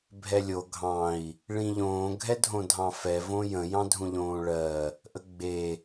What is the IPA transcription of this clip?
bʱ ɛ lʲ o ɡʱ ɑ̃ i̯ | ɭ ĩ ʎ õː ɡʱ ɛ dʱ õ dʱ ɑ̃ f ɛ v õ j ə̃ j ɑ̃ dʱ ũ ʎ õː ɭ ɜ | ʔ ə ɡ͡b e

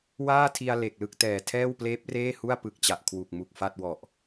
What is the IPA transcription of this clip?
w aː˥˩ tʰ i˧ a̯ l e˨˩ k̚ l ɯ˥˩ k̚ t ɛː˨˩ tʰ ɛː˥˩ w p l eː˦˥ p̚ r eː˥˩ h u˥˩ a̯ p ɯ˨˩ k̚ t͡ɕ a˨˩ ʔ kʰ w u˨˩ k̚ m u˨˩ k̚ f a˥˩ t̚ w ɔ˨˩ ʔ

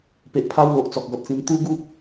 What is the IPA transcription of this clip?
p e˨ ʔ pʰ a˦ w l o˨ ʔ t͡s ɔ˨ k̚ ɡ ɔ˨ t̚ t͡s ĩ˧ n t̪ u˦ ɡ u˦ p̚

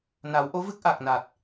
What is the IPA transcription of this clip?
n a˨˩˦ w ʔ o˧˥ v ɨ˦˥ k̚ ʔ a˨˩ k̚ n a˨˩ t̚

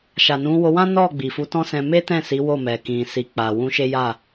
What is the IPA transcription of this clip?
ʃ a˨ n ũ˨˦ w o˧ w ã˦ n ɔ˦˨ ɡ͡b i˨ f u˨˦ t ɔ̃˦ s ɛ̃˧ m e˦ t ɛ̃˦˨ s i˨˦ w o˦˨ m ɛ˨ k ĩ˨ s i˨ k͡p a˨ w ũ˧ ʃ e˦ j a˦˨

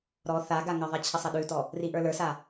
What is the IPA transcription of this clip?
ɾ ɔ θ a ɡ a ŋ ə ðˤ i t͡ɕʰ ə sˤ ɐ ɗ ʉ t ɔ | r i ʔ ə˞ l ə˞ s a

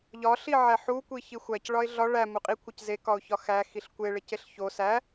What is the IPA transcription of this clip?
ʎ ɒ ɬ i ʕ æ ħ u kʷ i ç i xʷ æ c ɭ ɒ ɪ̯ ɮ ɒ ɭ æ m u qʼ i kʷʰ e c z e k ɒ ʊ̯ ç ɒ x æ x i ɬ kʷ e ɭ e c e ɬ ç o s æ

